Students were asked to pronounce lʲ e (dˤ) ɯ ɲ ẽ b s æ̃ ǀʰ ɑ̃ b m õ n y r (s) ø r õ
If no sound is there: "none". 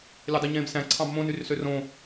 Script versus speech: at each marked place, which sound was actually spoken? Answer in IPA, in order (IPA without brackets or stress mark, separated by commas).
dˤ, s